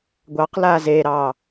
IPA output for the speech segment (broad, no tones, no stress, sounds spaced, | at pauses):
ɡʷ ɑ q l a z e ɾ ɑ